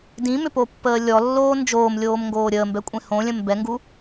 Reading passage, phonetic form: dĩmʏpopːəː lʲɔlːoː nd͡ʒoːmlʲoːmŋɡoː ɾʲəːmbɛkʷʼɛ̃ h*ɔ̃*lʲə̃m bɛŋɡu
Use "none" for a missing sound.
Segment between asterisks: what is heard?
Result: õ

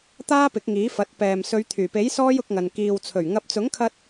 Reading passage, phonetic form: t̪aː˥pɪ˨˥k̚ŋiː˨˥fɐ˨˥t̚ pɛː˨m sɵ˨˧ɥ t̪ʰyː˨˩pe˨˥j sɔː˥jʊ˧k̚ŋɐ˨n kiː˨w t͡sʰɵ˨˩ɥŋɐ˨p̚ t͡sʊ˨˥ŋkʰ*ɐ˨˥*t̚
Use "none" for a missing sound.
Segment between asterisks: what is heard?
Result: ɐ˧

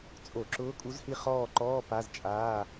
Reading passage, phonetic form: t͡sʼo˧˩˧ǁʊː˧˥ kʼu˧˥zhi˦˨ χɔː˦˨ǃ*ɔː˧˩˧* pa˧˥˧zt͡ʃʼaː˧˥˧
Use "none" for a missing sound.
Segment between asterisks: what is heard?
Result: ɔː˧˥˧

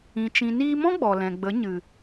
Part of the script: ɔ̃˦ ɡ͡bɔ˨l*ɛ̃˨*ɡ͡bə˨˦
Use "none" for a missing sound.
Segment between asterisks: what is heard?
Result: ɛ̃˨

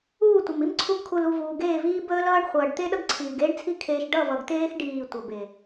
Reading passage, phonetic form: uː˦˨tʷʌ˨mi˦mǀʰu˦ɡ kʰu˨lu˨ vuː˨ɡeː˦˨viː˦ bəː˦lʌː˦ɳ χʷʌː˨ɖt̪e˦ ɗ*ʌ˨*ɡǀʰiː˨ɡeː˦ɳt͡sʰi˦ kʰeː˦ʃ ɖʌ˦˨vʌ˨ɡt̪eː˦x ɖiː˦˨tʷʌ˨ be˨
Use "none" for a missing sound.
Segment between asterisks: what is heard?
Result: ʌ˦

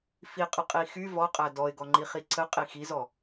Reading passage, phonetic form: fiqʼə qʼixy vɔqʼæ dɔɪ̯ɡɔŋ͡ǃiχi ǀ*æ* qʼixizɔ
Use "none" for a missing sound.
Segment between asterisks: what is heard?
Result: ə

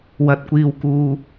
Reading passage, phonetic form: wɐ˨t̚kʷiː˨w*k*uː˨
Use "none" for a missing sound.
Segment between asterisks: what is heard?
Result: k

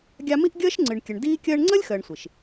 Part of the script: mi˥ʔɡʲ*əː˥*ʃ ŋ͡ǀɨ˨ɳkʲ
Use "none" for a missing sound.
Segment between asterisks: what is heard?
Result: əː˥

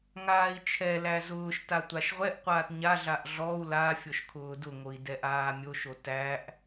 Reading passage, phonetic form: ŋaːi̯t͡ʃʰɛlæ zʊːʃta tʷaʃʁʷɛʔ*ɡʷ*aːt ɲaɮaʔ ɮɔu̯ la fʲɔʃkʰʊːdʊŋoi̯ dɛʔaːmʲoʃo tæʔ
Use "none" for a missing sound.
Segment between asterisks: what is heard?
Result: qʷ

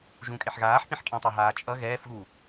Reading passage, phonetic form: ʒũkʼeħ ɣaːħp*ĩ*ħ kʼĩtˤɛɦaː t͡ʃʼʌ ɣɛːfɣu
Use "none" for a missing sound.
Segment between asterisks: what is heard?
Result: ĩ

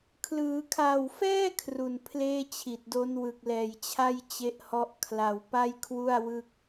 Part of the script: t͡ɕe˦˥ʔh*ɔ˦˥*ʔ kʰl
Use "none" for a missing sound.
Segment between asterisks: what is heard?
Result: ɔ˦˥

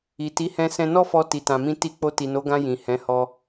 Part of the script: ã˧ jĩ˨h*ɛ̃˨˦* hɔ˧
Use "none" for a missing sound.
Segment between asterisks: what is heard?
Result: ɛ̃˨˦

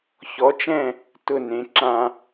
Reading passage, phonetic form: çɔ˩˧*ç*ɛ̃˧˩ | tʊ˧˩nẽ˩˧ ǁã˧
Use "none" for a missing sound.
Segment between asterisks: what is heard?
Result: t͡ʃ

